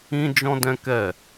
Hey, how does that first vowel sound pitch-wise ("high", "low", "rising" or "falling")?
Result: high